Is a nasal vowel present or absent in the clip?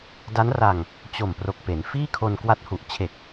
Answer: absent